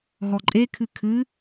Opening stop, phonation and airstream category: click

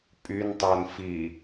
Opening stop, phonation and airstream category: ejective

